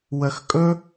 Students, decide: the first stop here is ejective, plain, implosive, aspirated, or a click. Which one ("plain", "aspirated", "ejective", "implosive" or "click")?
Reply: ejective